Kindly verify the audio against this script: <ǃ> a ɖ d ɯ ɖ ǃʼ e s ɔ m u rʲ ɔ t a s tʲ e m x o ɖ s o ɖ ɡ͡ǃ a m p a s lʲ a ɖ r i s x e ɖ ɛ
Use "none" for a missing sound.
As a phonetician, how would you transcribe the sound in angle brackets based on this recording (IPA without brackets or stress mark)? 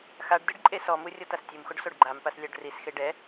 x